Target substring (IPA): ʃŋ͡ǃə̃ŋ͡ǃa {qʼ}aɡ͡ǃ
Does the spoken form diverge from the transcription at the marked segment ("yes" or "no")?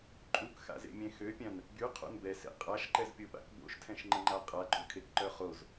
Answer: no